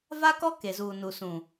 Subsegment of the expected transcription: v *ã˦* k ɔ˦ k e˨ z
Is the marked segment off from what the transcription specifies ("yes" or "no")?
yes